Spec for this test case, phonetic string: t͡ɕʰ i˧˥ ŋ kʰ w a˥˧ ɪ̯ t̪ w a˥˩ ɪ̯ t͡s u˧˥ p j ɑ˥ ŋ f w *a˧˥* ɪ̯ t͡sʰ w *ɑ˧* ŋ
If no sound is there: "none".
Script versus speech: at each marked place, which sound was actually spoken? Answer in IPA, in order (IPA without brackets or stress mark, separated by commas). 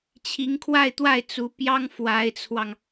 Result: a˧˥, ɑ˧